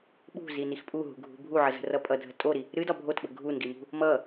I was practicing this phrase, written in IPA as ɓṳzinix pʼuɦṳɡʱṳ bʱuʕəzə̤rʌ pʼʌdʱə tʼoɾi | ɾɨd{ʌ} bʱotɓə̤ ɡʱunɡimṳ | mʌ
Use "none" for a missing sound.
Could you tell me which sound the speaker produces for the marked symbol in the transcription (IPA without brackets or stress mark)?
ɒ